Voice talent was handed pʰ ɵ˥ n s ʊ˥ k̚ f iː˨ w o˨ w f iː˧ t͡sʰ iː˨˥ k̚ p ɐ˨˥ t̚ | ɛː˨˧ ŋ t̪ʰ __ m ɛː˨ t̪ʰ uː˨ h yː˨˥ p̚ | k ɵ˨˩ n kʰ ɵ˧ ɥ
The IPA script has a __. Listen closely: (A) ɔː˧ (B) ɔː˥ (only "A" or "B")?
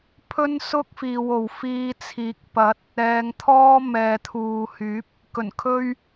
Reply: B